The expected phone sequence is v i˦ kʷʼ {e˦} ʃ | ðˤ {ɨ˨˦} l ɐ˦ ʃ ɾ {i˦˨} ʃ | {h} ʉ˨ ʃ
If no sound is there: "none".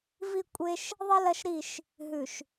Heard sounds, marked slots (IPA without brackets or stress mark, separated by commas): e˦, ɨ˦, i˦˨, ɦ